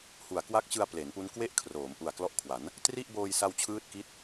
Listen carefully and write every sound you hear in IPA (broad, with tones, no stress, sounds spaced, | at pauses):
h u˨˩ a̯ k w a˦˥ k̚ t͡ɕ ɯ˧ a̯ p l e˩˦ n p u˦˥ n k w e˥˩ ʔ kʰ r oː˩˦ m ʔ u˨˩ a̯ k l ɔ˦˥ ʔ kʰ w a˩˦ n | t r i˥˩ ʔ b oː˧ j s a˧ w t͡ɕʰ ɯː˦˥ t̚ k i˦˥ t̚